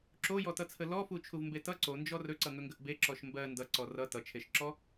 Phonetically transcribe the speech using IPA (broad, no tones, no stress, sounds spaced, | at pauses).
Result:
ǁ o j ɔ t ʌ t͡sʰ ə l ɔ f u t͡ʃʰ u v m b e t ʌ ǀ o n d͡ʒ ɔ r ɵ ǀ ʌ ŋ ɵ ŋ ɡ ə ʔ b e ǁ ɔ ʃ m b ɜ n d ʌ ǀ ɔ r ʌ t ʌ t͡ʃʰ e ʃ ǁ ɔ